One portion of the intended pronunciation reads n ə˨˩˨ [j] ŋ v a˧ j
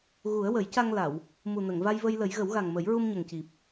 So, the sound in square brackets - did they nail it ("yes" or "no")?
no